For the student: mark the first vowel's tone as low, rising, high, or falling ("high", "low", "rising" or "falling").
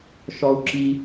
high